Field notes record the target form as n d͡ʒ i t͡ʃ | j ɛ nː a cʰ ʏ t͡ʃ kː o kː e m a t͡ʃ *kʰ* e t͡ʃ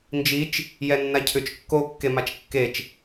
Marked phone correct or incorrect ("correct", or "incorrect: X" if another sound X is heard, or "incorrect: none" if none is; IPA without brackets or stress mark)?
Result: incorrect: kː